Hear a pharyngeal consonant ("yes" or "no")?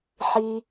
yes